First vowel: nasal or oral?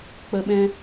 oral